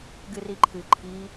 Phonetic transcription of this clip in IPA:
ɡ ɨ r i ǃʰ ɨ ǃʰ i

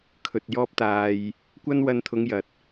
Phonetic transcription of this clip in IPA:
kʰ ɵ˨ t̚ j ɔː˥ p̚ t̪ aː˧ j | kʷ ɐ˥ n w ɐ˧ n t̪ʰ ʊ˨˧ ŋ j ɐ˨ t̚

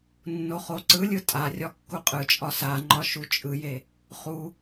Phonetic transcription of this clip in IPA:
nː o χ o ǀ ɯ lʲ ɯ tʼ a rʲ ɒ kː u qʼ ɯ t͡ʃʼ ɒ s a ŋ͡ǃ ɒ ʃ u t͡ʃʼ ɯ j e | χ u

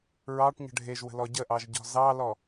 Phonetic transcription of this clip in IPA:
ɹ ɑ ʈ ɲ ə̤ ɖʱ e ʒ w ə̤ l ɔ ɟ ə ʔ ɑ ʒ ɟ ɔ̤ z ɑ l ɔ

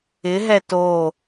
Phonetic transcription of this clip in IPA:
ɪ ɦ ɛ t o

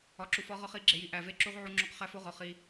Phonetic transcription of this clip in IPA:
ɒ˨ ǁ u˨ f ɒ˨˦ ʁ ɒ˦ χ i˨˦ ɡ͡ǁ e˨ j i˨ ʔ æ˨ v e˦ ǁ u˦ ʁ ʕ u˦ ŋ͡ǁ o˦ q χ æ˦ f o˦ ʁ ɒ˨ χ i˦

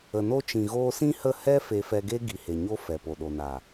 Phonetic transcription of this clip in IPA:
ə˨ n o˧ t͡ʃ ĩ˨ ɣ oː˧ s ĩ˦ h ə˦˨ h ɛ˦ f e˧ f ɛ˧ ɡ e˦ ɡ i˨ h e˨ ɲ o˧ f ɛ˨ p o˨ ɗ o˨ n a˨

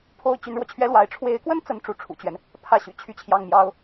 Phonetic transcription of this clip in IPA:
pʰ o˥ ʊ̯ t͡ɕ y˧˥ n ɻ w ɔ˧ t͡ɕʰ ɥ ɛ˥ l w a˧˥ ɪ̯ ʈ͡ʂʰ w e˧˥ ɪ̯ k w ə˥ n t͡s ə˥˧ n ʈ͡ʂ u˥˩ ʈ͡ʂʰ ṵ˨˩ t͡ɕ ɥ ɛ˦ n | pʰ ä˥˩ ɕ y̰˨˩ t͡ɕʰ y˥˧ t͡ɕʰ j ɑ˥˩ ŋ m j ɑ˥ ʊ̯

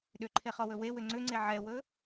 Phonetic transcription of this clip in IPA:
ɗ ʏ ǃʰ e χ ɔ w ɵ w e w ʏ ŋ͡ǀ ʏ ŋ͡ǀ e ʕ ɛ w ɵ

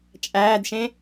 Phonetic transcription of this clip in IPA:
t͡ʃʼ æː d ʃ ẽ

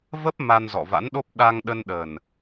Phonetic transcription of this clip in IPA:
v ə˦˥ p̚ m a˧ n z ɔ̰˧˨ v a̰˧˥ n ɗ o˦˥ p̚ ɗ a˧ ŋ ɗ ə˧ n ɗ ə˨˩ n

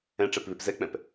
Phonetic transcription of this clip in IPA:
ɛ̃ ʈ͡ʂ ɛ p β e p z ɛ k͡p ɛ̃ p

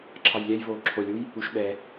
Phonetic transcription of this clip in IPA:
ǁʰ ɑ j lʲ ɛ j v oː ǁʰ o lʲ u j | u ʃ ɓ ɛ

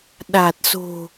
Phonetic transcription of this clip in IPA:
ɗ a˨˩ t̚ s o̤˨˩

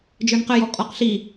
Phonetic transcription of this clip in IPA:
d͡ʒ ə˞ n q ə j ɔ kʼ ɔ q ɬ i

